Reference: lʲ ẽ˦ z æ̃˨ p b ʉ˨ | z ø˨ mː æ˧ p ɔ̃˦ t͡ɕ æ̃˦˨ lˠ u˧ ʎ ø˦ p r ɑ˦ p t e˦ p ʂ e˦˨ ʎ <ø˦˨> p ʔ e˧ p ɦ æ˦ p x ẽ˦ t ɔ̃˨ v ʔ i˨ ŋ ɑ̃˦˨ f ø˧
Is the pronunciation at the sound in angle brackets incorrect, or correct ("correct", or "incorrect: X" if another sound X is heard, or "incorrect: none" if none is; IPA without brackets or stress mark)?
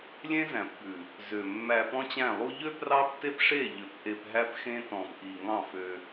incorrect: ø˨